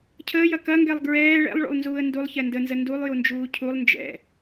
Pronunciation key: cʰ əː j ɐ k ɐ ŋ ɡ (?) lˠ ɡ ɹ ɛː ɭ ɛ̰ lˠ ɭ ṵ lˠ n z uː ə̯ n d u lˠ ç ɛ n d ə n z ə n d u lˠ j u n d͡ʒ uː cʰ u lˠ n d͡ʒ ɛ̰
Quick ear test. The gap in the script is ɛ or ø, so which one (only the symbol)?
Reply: ɛ